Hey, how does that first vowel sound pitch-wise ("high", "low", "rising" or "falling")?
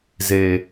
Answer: low